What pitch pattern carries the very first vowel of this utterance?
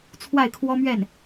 falling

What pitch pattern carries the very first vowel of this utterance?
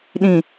low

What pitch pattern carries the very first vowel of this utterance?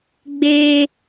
high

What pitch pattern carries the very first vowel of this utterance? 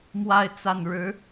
falling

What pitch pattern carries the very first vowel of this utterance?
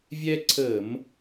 high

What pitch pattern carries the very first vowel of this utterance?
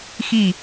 falling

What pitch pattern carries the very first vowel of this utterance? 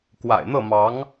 low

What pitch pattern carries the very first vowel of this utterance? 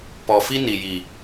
low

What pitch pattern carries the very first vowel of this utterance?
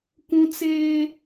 high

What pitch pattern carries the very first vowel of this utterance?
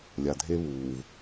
low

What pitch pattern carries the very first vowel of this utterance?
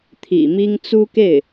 low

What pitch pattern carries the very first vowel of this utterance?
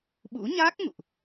rising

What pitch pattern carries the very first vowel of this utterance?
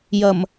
low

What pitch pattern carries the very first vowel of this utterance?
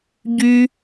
high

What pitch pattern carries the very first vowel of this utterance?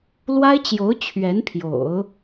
high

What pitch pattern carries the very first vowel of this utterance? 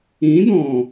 rising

